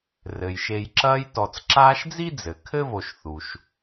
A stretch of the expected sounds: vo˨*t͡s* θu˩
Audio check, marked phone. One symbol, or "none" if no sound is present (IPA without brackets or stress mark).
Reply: ʃ